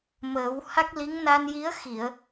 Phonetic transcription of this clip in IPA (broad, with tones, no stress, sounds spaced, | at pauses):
m əː˨˩˦ w h a˦˥ k̚ l i˧˥ ŋ n a˧ n j i˧˥ ə̯ x i˨˩˨ ə̯